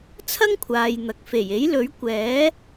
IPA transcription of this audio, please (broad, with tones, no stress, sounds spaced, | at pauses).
t͡sʰ ɐ˥ ŋ kʷʰ aː˨ j n̪ ɐ˨ k̚ f e˨˩ j e˨˥ j l ɵ˨˥ ɥ kʷ ɛː˨˥